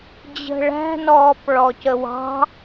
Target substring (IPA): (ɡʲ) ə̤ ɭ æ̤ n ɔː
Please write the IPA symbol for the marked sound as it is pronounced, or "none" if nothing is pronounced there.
d͡ʑ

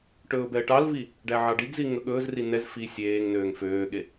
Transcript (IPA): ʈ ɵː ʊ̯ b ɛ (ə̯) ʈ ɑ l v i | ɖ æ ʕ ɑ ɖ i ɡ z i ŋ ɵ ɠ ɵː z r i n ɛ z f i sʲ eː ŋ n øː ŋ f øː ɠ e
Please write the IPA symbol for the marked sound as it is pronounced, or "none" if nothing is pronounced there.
ə̯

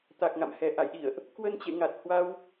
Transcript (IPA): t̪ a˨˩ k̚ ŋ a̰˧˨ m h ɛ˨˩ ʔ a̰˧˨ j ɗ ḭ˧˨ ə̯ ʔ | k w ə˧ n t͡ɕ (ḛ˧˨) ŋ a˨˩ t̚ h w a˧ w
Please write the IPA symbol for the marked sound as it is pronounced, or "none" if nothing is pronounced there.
ḛ˧˨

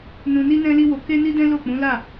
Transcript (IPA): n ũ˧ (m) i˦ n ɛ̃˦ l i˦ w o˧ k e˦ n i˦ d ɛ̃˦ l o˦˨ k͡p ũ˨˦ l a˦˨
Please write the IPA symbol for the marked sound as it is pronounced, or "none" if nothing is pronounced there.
n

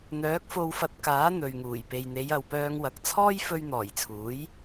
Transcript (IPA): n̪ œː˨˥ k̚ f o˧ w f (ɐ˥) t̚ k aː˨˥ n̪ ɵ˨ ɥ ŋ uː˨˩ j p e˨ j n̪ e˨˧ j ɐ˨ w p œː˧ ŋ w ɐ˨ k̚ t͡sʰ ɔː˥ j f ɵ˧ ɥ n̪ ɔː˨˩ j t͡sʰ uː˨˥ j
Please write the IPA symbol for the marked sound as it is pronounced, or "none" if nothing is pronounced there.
ɐ˧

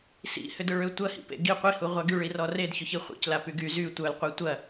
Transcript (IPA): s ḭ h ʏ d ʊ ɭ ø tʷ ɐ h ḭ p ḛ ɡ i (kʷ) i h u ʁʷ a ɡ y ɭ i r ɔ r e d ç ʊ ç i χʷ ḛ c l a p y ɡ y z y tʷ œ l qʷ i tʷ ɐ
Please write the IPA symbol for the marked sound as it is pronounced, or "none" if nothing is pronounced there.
qʷ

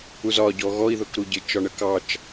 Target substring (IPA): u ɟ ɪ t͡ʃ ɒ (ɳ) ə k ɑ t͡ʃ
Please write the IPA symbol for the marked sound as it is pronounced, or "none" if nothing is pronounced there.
ɳ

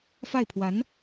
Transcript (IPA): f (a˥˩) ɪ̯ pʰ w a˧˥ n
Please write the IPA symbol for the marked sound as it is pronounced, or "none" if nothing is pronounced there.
a˥˩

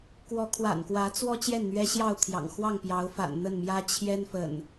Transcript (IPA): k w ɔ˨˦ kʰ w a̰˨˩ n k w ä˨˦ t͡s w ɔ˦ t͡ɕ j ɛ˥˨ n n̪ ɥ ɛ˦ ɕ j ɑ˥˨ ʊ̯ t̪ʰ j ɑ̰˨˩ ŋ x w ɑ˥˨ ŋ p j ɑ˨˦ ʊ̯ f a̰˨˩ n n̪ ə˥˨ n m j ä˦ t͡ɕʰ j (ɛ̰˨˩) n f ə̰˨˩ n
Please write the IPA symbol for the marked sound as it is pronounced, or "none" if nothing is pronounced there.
ɛ˦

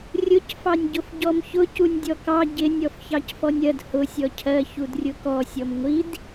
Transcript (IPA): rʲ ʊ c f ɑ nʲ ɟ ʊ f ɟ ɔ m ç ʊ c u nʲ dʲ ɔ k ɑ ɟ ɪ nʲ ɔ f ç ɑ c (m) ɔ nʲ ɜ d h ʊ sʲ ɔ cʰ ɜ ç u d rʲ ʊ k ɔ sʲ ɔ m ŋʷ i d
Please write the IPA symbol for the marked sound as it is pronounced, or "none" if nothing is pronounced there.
f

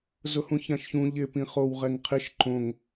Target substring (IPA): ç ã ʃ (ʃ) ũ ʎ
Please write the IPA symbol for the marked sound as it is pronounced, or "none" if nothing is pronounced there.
ç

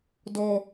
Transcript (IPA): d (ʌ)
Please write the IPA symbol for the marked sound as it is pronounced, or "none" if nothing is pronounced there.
ɔ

